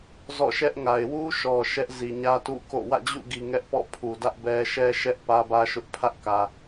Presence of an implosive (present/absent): absent